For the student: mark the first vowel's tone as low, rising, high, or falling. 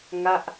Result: falling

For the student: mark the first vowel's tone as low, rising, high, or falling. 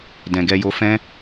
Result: low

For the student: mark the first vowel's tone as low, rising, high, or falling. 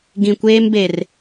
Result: low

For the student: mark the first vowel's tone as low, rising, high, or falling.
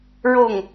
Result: falling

